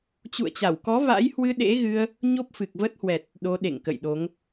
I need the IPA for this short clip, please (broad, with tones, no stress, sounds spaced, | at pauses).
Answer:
t͡ɕ ṵ˧˨ ə̯ t͡ɕ a˧˩ w k ɔ˨˦ v a̰˧˥ j h w ɨ˧ ɗ ḛ˧˥ ɣ ɨ˧ ə̯ | ɲ o˦˥ p̚ f ɨ˨˩ k̚ v ə˦˥ t̚ h w ɛ˨˩ t̚ | ɗ o˨˦ ɗ ḛ˧˨ ŋ k ə̰˧˨ j ɗ o˨˦ ŋ